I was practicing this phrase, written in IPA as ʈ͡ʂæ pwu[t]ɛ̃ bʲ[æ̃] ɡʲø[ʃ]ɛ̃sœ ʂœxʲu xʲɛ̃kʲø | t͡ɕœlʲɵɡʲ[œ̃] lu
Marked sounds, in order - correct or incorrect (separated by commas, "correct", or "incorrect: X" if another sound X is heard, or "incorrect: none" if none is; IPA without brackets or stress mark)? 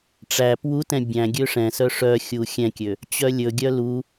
correct, correct, incorrect: ʂ, incorrect: œ